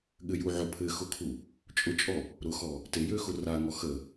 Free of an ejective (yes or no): no